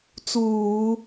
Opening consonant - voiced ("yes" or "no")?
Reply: no